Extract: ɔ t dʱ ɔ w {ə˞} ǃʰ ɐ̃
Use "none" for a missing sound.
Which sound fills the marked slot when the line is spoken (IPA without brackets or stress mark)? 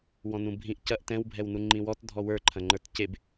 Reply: ə˞